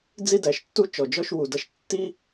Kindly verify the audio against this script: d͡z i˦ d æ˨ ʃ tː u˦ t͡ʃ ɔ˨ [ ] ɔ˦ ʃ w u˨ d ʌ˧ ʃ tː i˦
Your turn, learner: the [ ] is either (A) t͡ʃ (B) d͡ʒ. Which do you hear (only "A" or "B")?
B